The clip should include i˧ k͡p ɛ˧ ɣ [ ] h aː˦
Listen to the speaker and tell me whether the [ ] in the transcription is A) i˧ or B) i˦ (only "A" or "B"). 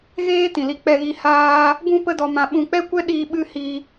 A